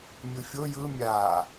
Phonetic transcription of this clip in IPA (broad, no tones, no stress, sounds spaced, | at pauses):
mʲ ɯ fʲ o j ɯ mʲ a